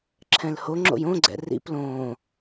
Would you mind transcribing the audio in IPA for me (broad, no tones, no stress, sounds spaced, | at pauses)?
ǁʰ ɛ̃ l h o ŋ͡ǁ o̰ j õ ɡ͡ǀ ɛ̰ r ḭ p l õː